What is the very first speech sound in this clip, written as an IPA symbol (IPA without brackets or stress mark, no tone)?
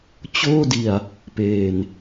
t͡ɕ